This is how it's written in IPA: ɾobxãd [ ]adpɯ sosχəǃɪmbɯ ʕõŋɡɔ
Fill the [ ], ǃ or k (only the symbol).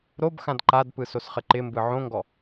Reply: ǃ